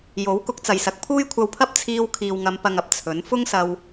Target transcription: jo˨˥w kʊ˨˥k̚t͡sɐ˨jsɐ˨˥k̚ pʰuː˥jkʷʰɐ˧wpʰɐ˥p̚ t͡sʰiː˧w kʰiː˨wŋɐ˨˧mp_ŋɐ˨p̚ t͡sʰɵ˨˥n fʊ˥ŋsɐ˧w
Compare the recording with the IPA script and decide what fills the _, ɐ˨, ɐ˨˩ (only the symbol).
ɐ˨